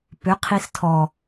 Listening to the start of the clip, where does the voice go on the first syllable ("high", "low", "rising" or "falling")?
rising